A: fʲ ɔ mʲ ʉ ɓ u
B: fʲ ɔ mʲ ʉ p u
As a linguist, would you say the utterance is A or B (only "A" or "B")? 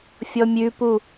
B